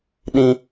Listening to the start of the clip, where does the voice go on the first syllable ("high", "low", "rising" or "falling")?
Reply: high